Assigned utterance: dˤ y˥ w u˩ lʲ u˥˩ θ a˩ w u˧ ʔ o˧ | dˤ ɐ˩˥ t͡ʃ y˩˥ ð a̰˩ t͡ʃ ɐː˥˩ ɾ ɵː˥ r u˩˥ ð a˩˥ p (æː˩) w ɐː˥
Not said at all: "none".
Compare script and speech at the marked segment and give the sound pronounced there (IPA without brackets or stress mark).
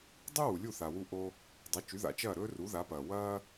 ɐː˩